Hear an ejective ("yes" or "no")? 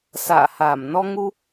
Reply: no